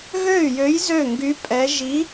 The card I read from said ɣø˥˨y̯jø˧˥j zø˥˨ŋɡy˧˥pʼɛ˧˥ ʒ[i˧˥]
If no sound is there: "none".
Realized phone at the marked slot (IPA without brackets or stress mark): i˧˥